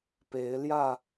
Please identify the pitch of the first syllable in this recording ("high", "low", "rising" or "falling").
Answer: rising